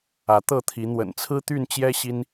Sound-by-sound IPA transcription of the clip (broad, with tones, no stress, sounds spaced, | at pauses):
ä˨˦ t̪ ɤ˥˨ t̪ʰ i˨˦ n̪ w ə̰˨˩ n t͡sʰ ɹ̩˦ t̪ y˥˨ n t͡ɕ j ɛ˦ ɕ i˦ n